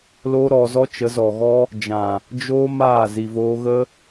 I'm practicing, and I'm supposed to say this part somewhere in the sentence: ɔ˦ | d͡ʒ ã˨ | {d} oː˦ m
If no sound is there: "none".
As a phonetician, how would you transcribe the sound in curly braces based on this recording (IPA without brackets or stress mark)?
d͡ʒ